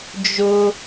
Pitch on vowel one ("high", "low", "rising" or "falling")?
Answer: high